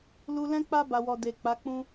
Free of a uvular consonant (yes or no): yes